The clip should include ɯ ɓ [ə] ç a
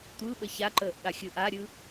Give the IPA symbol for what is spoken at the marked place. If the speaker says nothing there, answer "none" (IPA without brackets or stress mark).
ə